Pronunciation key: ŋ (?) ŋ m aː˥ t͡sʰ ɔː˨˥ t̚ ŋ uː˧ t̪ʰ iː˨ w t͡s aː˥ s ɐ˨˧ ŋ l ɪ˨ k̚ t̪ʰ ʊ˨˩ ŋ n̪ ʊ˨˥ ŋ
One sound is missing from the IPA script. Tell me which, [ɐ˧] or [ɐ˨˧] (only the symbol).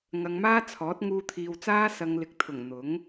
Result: ɐ˨˧